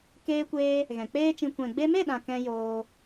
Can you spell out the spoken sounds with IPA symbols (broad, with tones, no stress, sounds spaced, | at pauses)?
k eː˧ kʷ eː˧ | ɣ ɛ̃˨ k͡p eː˦ t͡ʃ ĩ˧ kʷ ɛ̃˨ ɡ͡b e˧ m e˦˨ ɗ ã˨ k ɛ̃˧ j oː˧